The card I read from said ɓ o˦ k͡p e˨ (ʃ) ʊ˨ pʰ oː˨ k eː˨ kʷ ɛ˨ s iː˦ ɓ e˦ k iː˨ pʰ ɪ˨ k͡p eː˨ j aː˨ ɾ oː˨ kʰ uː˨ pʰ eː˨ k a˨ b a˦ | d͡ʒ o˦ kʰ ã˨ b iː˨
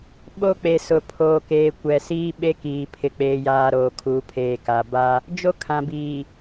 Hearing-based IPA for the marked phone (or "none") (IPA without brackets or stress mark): s